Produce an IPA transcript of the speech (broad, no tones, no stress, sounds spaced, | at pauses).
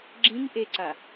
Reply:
ɡ͡ǁ ĩ ŋ ʔ e ǀ a